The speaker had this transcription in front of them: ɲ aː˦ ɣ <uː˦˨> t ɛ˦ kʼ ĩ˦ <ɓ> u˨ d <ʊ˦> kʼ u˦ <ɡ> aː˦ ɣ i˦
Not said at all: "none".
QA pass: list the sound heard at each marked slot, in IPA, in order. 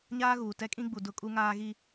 uː˨, ɡ͡b, ʊ˦, ŋ

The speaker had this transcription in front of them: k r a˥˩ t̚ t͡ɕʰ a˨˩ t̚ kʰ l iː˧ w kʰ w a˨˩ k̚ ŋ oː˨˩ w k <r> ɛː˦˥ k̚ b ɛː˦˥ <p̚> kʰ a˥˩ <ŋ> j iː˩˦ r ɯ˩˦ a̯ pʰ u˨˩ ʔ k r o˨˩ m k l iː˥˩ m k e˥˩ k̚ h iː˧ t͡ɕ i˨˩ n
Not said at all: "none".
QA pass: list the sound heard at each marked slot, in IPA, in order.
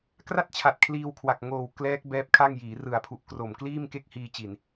l, p̚, ŋ

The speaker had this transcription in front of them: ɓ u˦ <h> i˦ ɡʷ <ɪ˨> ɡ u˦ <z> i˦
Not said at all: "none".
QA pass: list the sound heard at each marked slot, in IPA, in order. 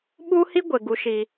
h, ɪ˨, ʃ

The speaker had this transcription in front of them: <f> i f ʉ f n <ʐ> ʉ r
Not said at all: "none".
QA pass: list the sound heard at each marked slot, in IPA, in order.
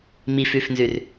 m, z

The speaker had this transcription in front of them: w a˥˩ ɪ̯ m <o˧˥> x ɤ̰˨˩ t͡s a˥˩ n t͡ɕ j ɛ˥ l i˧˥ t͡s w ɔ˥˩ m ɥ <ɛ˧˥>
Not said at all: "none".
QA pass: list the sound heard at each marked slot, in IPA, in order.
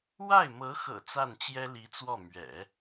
ɤ˧˥, ɛ̰˨˩˦

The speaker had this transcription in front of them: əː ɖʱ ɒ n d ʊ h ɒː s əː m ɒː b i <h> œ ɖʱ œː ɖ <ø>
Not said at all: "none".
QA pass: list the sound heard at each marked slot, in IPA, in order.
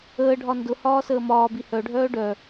h, œ

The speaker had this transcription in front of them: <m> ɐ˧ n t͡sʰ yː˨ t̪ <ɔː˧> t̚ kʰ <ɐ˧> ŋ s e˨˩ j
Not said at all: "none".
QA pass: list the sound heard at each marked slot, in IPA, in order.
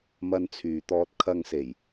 m, ɔː˧, ɐ˧

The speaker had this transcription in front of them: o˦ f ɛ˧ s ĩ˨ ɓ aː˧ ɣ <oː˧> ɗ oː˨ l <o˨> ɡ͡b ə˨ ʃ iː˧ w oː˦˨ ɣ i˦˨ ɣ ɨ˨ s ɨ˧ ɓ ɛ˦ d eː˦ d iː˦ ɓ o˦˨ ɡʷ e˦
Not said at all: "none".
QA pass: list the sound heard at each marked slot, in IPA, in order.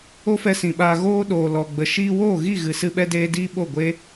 oː˧, ɔ˨

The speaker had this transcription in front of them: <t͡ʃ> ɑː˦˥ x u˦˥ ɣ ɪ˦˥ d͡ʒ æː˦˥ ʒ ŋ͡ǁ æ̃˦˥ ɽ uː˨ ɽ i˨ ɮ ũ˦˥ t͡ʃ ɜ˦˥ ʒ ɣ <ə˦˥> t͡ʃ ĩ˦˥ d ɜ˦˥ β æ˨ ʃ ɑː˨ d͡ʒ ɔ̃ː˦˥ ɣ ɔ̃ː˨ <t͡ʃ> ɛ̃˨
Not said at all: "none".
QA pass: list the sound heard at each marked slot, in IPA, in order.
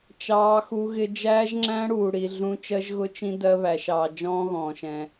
t͡ʃ, ʊ˦˥, ʃ

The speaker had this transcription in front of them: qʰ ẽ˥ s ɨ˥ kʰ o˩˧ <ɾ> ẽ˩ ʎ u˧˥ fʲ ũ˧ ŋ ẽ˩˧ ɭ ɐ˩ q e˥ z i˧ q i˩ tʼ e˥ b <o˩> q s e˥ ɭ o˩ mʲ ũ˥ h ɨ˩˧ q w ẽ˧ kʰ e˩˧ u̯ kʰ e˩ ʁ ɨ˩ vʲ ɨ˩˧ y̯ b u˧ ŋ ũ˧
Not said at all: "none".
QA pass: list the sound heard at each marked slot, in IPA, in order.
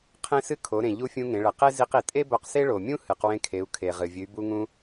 ɾ, o˧

